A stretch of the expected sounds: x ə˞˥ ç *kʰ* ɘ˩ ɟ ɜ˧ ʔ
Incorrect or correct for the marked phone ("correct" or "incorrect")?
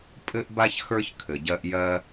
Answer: correct